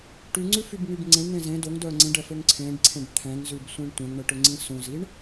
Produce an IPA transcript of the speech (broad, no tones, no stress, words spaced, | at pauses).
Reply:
ʈyŋ͡ǀʉfybŋyb ŋ͡ǀẽɳn̪ẽ zẽ doŋdœ ŋ͡ǀĩɖɛføŋ ǀʰẽɖǀʰẽɖ t̪ʰɛ̃ŋzʉbsʷĩɳ tʷɛ̃ŋɳɛʈøŋ͡ǀĩ sũziɳ